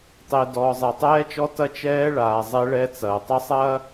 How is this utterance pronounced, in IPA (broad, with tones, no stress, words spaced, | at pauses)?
tˤe˨ dɔː˨zˤɛ˨tˤɛː˦t͡ʃɔ˦ tɐ˦t͡ʃɛː˦ɭaː˨ zˤɛ˦ɭɛ˦t͡sɐː˨ tˤɐ˦sˤɐː˦